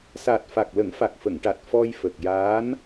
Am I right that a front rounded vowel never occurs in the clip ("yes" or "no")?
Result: yes